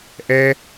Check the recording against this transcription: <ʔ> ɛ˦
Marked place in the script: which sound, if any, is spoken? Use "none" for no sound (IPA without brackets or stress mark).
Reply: ʔ